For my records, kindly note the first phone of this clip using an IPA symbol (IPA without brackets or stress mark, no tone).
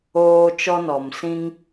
oː